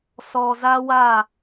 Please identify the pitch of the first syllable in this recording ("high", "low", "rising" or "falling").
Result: low